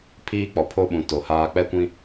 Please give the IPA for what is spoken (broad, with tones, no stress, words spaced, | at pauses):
pʰiː˦k͡pɔ˨ pʰo˦ɓũ˨ to˨ haː˨k͡pɛ˦kʷĩ˦